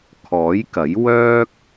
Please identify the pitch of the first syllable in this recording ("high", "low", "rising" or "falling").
rising